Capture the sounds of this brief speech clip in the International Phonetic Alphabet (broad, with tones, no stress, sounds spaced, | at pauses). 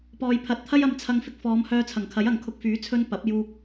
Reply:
p ɔː˨ j pʰ ɐ˨˥ t̚ t̪ʰ ɐ˥ j ɐ˨˧ m t͡sʰ ɐ˧ ŋ f ɪ˧ k̚ f ɔː˨˧ m h œː˧ t͡sʰ ɐ˨˩ ŋ kʰ ɐ˨˥ j ɐ˨ ŋ kʰ ʊ˧ k̚ f yː˨˥ t͡sʰ ɵ˥ n p ɐ˨˥ p̚ j uː˧ k̚